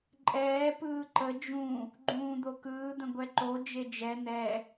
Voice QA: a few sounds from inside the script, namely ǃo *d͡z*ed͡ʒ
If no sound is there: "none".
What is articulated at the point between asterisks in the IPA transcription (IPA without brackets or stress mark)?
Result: d͡ʒ